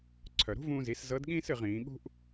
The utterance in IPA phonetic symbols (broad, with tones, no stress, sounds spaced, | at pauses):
ǀʰ œ˩ ɾ ṳ˥ v ũː˧ z i˩˧ s z ɤ˧˥ d ɠ ĩː˥ s ɨ˩˧ ʁ ĩː˩˧ ɠ ṳ˥ ʔ